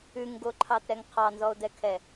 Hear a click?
yes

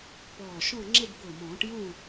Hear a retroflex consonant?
yes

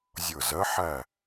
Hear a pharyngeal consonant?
yes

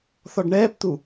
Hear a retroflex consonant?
yes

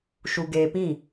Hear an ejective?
no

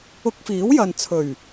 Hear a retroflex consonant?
no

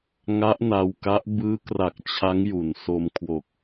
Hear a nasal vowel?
no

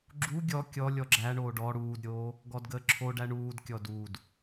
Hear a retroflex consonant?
yes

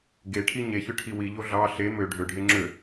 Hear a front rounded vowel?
yes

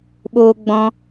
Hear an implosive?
yes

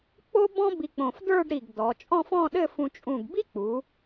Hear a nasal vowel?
yes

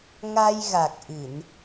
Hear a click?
no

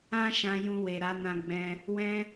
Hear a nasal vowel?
yes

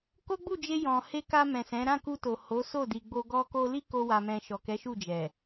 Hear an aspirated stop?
no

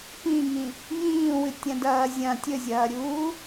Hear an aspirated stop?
no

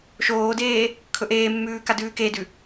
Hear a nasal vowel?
no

